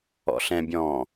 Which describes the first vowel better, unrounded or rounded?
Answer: rounded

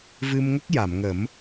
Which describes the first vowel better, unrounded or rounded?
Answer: unrounded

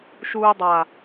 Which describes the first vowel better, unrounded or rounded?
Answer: rounded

